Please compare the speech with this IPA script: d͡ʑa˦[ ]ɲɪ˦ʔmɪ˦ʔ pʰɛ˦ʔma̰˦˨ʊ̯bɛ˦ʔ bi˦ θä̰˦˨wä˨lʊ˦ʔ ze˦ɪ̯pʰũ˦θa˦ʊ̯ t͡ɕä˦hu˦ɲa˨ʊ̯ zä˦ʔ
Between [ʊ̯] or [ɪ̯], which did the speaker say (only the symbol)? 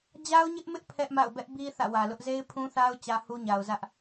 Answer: ʊ̯